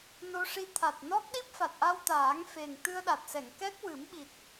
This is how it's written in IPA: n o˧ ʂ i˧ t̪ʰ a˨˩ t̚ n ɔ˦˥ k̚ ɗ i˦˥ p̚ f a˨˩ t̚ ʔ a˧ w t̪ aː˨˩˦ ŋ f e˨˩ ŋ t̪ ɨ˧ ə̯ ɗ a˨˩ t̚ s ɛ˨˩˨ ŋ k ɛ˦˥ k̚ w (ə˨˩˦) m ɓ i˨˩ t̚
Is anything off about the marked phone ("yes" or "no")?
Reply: yes